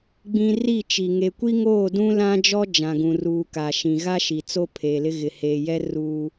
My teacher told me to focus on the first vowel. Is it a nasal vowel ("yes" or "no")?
yes